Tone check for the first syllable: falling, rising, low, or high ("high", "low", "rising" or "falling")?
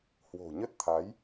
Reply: low